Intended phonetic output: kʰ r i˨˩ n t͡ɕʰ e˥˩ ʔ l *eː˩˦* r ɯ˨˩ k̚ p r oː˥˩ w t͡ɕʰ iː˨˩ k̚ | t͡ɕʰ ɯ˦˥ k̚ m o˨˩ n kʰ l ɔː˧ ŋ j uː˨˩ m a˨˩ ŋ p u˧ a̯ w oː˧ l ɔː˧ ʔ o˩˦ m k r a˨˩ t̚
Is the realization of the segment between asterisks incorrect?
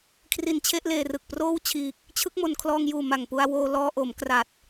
yes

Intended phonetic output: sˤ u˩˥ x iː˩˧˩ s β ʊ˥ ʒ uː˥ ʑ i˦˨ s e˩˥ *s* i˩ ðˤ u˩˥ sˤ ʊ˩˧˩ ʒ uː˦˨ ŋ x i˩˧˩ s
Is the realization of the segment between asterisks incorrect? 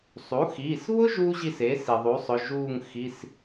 no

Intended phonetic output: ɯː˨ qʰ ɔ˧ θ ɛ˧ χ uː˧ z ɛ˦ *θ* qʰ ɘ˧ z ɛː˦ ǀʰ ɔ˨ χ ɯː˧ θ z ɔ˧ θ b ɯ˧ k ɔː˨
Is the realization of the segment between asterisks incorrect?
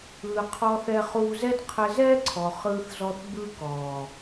yes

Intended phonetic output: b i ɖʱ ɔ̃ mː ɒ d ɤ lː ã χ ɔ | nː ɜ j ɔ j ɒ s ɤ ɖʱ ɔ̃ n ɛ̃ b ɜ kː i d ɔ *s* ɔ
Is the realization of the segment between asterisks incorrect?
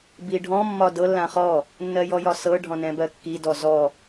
yes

